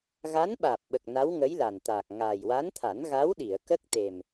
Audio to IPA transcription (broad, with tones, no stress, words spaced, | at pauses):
ɣa˧˥nɓaː˨˩p̚ɓə˨˩k̚ na˧˥wŋə˧˥j la˨˩nt̪aː˨˩k̚ ŋaː˨˩jwa˧˥nt̪ʰa˨˩˦nɣa˧˥w ɗi˨˩˨ə̯kə˦˥k̚t̪e˨˩m